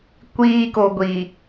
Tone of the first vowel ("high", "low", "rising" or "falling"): low